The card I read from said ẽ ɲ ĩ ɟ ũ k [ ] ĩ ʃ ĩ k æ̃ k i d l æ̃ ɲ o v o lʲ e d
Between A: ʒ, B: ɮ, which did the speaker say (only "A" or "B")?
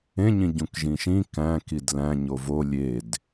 A